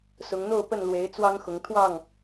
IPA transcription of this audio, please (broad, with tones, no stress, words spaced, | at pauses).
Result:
sʊ˨˦ŋn̪o˥˨ʊ̯pə˥˨n lwe˨˦ɪ̯ t͡swɑ˦ŋxʊ˨˦ŋ t̪ʰwɑ˥˨ŋ